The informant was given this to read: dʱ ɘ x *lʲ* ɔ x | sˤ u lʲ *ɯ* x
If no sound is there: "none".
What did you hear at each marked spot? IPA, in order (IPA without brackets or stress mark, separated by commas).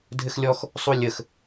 lʲ, ə